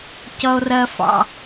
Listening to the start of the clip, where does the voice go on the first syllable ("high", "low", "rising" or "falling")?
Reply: low